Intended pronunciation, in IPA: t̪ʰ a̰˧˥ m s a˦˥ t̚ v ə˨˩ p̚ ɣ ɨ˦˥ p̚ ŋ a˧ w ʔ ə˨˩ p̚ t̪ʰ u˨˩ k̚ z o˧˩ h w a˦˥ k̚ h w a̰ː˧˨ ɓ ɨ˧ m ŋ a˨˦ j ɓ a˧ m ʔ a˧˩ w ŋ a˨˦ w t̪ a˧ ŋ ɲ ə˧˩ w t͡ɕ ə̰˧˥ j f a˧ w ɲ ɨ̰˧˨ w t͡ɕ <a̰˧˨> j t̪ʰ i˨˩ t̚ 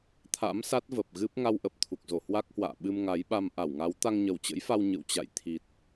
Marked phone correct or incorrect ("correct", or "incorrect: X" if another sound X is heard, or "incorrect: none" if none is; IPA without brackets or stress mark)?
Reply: correct